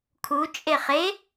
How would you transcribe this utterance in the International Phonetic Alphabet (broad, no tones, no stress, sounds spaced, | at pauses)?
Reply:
kʰ u t͡ʃʼ e χ e